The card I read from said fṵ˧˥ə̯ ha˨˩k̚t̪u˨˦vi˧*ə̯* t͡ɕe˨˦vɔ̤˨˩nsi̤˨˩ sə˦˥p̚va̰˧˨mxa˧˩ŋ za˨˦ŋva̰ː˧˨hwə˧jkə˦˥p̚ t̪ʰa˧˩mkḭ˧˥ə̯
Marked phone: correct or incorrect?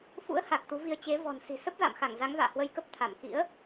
correct